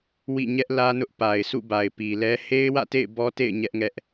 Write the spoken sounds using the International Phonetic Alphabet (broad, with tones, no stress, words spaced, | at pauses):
wḭ˦˨ɲɛ˦ʔlä˦nʊ˦ʔ pa˨ɪ̯sʰṵ˦˨ba˨ɪ̯ pi˨lɛ˦ he˦ɪ̯wä̰˦˨tḛ˦˨ɪ̯ bɔ˦tḛ˦˨ɪ̯ ɲɛ˦ʔŋɛ˦ʔ